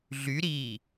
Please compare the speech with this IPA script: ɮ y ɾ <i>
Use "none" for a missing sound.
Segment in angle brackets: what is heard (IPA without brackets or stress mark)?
iː